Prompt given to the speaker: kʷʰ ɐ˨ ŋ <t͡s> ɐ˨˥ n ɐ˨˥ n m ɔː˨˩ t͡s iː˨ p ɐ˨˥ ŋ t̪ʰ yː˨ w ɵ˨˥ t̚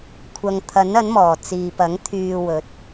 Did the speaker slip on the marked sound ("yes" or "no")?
yes